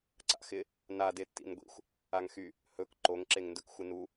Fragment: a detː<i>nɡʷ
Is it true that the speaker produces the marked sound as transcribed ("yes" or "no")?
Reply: no